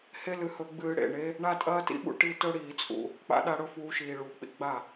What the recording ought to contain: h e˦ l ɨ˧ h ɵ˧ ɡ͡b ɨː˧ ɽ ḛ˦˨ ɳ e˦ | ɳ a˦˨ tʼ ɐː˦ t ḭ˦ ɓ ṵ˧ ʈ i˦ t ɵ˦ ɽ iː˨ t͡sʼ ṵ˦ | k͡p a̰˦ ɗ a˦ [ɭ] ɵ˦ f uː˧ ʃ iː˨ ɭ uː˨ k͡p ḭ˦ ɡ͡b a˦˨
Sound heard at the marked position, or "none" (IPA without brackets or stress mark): ɽ